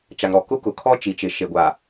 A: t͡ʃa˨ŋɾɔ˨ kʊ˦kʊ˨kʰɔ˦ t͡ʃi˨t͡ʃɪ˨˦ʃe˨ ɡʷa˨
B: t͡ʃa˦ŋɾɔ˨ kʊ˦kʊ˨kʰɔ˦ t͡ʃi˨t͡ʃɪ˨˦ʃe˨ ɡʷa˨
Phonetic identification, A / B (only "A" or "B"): A